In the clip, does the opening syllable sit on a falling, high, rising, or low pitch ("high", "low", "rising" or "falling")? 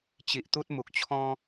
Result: low